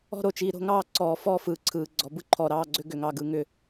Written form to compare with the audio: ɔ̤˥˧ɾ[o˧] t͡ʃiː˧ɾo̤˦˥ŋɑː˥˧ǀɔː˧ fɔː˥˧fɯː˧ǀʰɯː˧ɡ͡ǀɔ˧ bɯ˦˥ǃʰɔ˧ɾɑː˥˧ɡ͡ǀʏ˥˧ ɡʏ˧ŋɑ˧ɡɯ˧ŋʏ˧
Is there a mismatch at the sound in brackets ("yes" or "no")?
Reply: no